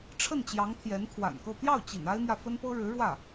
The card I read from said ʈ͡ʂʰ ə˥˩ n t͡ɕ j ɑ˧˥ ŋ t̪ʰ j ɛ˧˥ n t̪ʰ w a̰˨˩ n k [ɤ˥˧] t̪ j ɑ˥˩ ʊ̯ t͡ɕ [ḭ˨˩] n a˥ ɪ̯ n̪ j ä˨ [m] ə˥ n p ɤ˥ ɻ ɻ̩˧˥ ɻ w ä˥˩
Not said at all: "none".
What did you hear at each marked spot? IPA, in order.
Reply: ɤ˥˧, ḭ˨˩, f

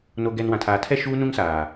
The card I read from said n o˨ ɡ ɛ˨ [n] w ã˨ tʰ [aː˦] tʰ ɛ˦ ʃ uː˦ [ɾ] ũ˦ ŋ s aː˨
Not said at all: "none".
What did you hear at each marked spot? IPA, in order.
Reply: n, aː˨, n

